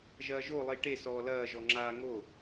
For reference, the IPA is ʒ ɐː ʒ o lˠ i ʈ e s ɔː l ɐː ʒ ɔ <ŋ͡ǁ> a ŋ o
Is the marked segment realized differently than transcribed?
no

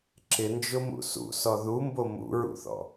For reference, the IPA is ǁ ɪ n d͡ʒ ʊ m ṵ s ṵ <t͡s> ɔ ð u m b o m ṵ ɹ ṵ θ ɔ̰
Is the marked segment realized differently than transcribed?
yes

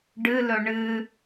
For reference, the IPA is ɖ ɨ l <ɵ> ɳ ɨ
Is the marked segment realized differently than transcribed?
no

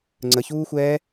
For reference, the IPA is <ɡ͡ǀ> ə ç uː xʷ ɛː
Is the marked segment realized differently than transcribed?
yes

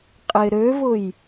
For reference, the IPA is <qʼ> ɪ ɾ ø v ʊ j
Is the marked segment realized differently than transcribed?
no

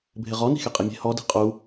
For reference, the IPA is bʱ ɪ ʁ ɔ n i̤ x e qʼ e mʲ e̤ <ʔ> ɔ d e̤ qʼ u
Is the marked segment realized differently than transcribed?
yes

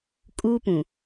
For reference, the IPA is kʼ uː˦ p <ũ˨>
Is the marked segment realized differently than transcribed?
no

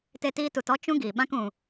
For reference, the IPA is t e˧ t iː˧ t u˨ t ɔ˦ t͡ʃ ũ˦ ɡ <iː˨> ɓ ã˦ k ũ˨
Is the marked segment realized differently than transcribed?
no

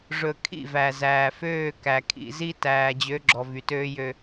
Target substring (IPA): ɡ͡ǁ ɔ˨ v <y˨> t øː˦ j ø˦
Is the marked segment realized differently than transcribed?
no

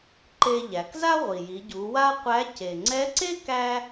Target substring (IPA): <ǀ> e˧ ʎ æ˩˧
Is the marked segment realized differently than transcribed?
yes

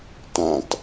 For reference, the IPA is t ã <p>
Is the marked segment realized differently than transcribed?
yes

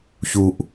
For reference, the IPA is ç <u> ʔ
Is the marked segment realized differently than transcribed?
no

